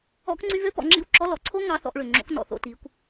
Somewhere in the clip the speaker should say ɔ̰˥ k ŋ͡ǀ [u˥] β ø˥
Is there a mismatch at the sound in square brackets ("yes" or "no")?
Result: yes